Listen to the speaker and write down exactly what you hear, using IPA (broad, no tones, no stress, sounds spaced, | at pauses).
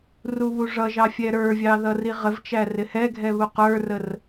r u β u ʐ ʌ ʒ ɑ fʲ ɛ ɾ ə˞ vʲ ɑ ð ʌ r i ʁ ə v t͡ʃ æ r ɪ h ɛ ɡʱ ɛ β u q ə˞ r ə r